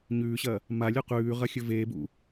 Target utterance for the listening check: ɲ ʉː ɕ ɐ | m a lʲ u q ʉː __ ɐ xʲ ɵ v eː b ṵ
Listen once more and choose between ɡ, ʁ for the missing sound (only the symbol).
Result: ʁ